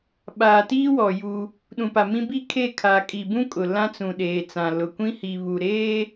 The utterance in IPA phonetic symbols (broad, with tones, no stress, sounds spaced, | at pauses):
ɓ aː˨ t iː˦ w ɔ˨ j u˦ | ɗ ũ˨ p a˨ m ĩ˦ b i˦˨ kʰ e˦˨ kʰ a˨ kʼ i˨ b ũ˦ kʼ ʊ˨ l ã˦ t͡s ũ˨ ɗ eː˨ t͡s ã˨ l ʊ˨ kʷ ĩ˦ h i˨ β u˨ ɾ eː˦